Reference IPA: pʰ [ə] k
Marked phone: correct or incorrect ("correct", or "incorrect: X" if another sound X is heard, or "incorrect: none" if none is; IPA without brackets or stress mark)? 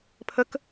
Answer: correct